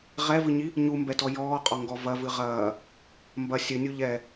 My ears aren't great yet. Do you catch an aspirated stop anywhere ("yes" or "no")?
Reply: no